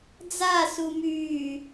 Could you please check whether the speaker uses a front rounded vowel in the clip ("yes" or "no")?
yes